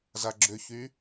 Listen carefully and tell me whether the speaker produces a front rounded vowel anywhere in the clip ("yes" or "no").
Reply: yes